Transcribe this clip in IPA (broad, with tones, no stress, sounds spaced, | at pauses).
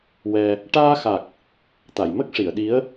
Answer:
w ɛ˧ | ʈ aː˧ x a˨˩ k̚ | t̪ a˨˩˨ j m ə˦˥ k̚ ʂ i˨˩˨ ə̯ ɗ i˧˥ ə̯